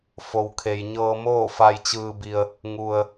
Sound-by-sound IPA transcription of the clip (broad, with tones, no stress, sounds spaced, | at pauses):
f o˩ w kʰ e˩ j ɲ ɤː˧ m oː˥˨ f a˧ j t͡ɕ ɯː˧ b i˧ ə̯ | ŋ u˩ ə̯